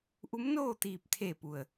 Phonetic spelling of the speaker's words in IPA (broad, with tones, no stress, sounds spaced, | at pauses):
ʔ u˧˥ m n oː˥˨ t̪ iː˧˩ p̚ t̪ʰ eː˧˩ p u˩ ə̯